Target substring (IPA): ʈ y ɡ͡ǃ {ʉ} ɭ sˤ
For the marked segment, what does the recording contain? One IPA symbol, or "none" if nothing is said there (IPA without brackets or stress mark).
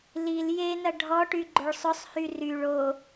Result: ʊ